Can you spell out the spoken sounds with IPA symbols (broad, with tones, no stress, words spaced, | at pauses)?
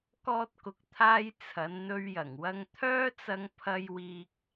kɔː˧t̚kʊ˨k̚t̪ʰaː˧j t͡sʰɐ˨˧nn̪ɵ˧ɥjɐ˨˩ŋwɐ˧ŋ t̪ʰœː˥t͡sɐ˧ŋ pʰɐ˧jwiː˧k̚